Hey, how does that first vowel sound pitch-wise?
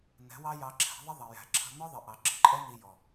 rising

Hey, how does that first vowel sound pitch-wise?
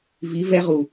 rising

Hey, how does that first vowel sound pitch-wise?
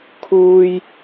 high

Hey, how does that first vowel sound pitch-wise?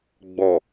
low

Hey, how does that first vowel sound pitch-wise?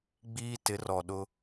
high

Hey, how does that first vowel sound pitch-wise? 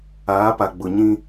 rising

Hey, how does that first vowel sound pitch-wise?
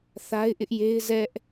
high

